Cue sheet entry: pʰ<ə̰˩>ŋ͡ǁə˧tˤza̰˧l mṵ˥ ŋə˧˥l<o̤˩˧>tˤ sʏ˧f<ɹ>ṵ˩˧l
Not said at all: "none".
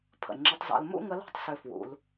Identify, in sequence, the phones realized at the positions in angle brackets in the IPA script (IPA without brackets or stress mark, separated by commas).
ə̰˩, o̤˥, w